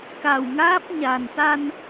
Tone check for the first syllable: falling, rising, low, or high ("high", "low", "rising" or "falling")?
low